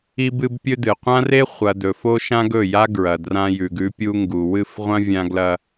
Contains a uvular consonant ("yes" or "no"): yes